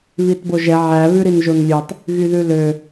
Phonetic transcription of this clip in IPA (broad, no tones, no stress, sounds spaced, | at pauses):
β i t b o ʒ ɛ ʕ æ β ʉ ɾ i n ʒ o n lʲ ʉ tˤ | ɣ y ð ʉ l ø